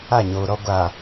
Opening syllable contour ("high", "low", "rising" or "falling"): falling